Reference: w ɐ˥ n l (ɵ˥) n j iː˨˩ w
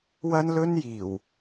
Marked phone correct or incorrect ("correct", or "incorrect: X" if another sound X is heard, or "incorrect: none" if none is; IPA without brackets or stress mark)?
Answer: correct